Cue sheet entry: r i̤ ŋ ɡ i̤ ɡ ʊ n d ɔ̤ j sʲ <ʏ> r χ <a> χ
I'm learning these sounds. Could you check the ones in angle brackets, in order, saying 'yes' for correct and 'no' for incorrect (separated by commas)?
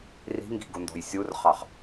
no, no